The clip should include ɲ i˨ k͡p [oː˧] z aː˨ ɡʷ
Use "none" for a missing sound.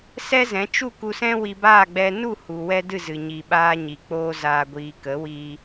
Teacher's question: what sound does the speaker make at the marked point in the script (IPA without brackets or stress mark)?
oː˧